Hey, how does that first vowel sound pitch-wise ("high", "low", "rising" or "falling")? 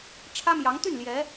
high